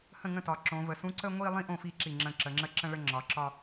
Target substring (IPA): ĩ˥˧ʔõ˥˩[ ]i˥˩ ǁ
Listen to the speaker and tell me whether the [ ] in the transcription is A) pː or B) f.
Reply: B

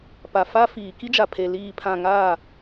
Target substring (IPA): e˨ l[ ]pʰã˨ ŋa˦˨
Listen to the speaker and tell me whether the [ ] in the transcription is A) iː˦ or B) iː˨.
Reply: B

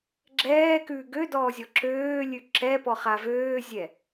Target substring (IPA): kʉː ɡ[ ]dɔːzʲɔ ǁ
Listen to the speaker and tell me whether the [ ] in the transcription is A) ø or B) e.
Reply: A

